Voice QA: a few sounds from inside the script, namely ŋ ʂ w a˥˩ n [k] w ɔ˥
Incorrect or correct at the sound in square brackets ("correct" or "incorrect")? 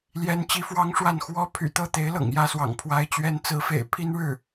incorrect